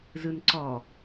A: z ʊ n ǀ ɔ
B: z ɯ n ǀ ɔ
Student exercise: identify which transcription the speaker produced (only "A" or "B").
B